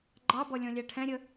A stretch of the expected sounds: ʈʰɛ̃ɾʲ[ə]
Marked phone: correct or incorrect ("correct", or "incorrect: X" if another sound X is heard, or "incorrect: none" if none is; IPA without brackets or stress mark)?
correct